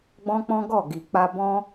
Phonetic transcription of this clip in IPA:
ɡ͡bɔ̃˦k͡pɔ̃˦ɡɔ˦˨ ɡi˨ k͡pa˧bɔ̃˦

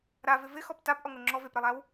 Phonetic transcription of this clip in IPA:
ɾavɪ vɪxɔp tapʔɔŋo ŋ͡ǁɔ vepɾɛlˠaw

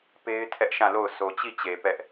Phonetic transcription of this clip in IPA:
pe˦ɪ̯ tʰɛ˦ʔʃã˦˨lo˦˨ʊ̯ sʰo˨t͡ɕi˦˨t͡ɕe˨ pɛ˦ʔ

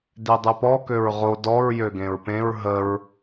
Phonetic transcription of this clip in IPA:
dedˤøpɔ køɹʁo dɔɹ jøɡẽɹpẽɹ ɦəɹ

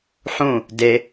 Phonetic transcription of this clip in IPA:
ħũ | de

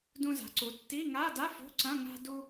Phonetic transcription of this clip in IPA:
dũ˧za̤˩˧ǀu˩˧ tːi˧˥˧ ŋa˧˥˧da˧˥˧ fo̤˧˥˧ǀɐ̃˧˥˧ ŋa̤˧ du˧

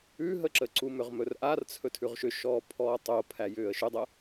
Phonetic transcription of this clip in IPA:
ʉɦəǁəǀu mʏʁmɵrʔart͡sʰɵ tʰʉʁʃʏʃɔː pʰɔːtˤo pʰæjʏːə̯ʃʏdˤə

